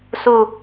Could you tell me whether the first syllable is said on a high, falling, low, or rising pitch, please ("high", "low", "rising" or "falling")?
falling